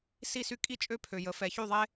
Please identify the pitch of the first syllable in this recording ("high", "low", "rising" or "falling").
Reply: falling